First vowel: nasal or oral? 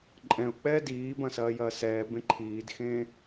nasal